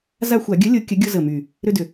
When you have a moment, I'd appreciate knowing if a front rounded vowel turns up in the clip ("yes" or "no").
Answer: yes